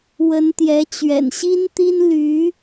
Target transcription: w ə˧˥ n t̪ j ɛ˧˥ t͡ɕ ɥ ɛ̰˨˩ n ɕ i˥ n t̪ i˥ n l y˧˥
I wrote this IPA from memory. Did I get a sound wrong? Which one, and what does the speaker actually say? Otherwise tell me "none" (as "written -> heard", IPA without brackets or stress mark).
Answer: none